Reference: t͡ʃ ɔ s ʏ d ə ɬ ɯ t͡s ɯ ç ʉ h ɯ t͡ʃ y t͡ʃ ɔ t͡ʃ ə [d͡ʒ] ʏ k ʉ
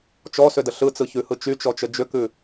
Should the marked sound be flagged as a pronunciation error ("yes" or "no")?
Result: no